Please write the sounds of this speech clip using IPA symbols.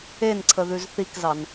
e n ǀʰ ə ð ʉ z θ i k z ɑ n

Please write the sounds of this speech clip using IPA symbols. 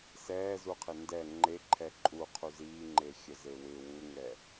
s ɛː z u qʰ ɪ n d ɛ ŋ͡ǃ e ǃʰ ɛ ǃʼ u qʰ u z iː ŋ͡ǃ e xʲ ə z e w ɪ w u ŋ ɛ

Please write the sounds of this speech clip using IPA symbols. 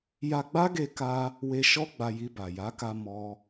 j a˧ ɡ͡b a˦ ɡ e˧ k a˧ | w e˧ ʃ ɔ˦ ɡ͡b a˧ j i˧ b a˨ j a˨˦ k a˧ m ɔ˦

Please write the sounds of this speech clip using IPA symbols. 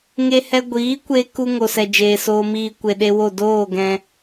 ŋ e˧ h ɛ˧ ɡʷ iː˨˦ kʷ e˧ k u˧ ŋ o˨ s ɛ˨ d͡ʒ eː˨ s oː˧ m iː˧ kʷ e˨ ɗ e˧ w o˦˨ d oː˦˨ ɡ ɛ̃˧

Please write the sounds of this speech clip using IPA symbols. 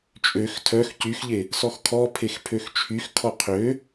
t͡ʃʼ ø x tʰ œ x c y x ʎ e | s ɔ x kʰ ɔ pʰ e x pʰ ø x t͡ʃʰ y x kʰ ɔ qʰ ø

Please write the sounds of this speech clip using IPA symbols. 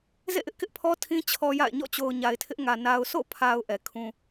z ḛ˦˨ ʔ ɪ˦ ʔ k ɪ˦ ʔ pʰ ɔ˦ tʰ ĩ˦ t͡ɕʰ ɔ˦ j a̰˦˨ ɪ̯ ɲ ɔ̰˦˨ t͡ɕ o˨ ʊ̯ ɲ a˨ ɪ̯ tʰ ɪ˦ ʔ ŋ ä˨ n a˨ ʊ̯ s o̰˦˨ pʰ a˨ ʊ̯ ʔ ɛ˨ kʰ ũ˦

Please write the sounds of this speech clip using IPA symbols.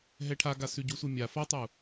ɦ ɛ ʈʰ a ɡ a s ʉ ɟ u sʷ ɛ mʲ a f a tˤ u

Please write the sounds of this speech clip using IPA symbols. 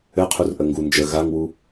ɘ qʰ u r ʔ ə ŋ ɡ u n d͡ʒ ə ɣ a ŋ w u

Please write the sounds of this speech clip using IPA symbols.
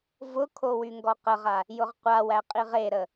v ʊ kʰ o w y ŋ ɡ ɔ q ə ʁ a | j ʊ ʁ qʷ a w æ qʼ i ʁ e ɾ ə

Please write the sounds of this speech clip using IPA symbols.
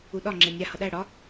u ɗ ɒ ŋ͡ǁ e nʲ a h ʌ ɗ æ ɽ ɒ

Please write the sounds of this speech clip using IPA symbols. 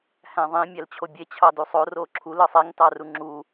h æ̃ ðˤ ĩ mʲ æ l t͡ɕʰ o bʲ e t͡ɕʰ ɑ d u sˤ o r o ǁʰ u l ɯ sˤ e ŋ t ɑ r u ŋ͡ǁ u

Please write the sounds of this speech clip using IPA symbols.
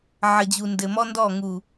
ʕ ə˨ d͡ʑ u˨ n d ɘ˨ m ɔ˦ n d ɔ˦˨ ŋ u˨

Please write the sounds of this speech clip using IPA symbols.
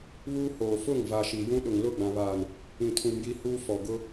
β uː˦ h oː˨ f ʊ˦˨ ŋ v a˨ ʃ i˨ j ũ˦ ɗ ʊ˨ ŋ l ʊ˦˨ ɡ͡b ã˨ β aː˨ n | ĩ˨ tʰ ũ˨ m j i˦ h uː˦ f ɔ˨ ɡ ʊ˦

